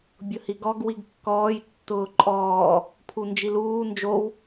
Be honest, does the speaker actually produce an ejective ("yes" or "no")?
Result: yes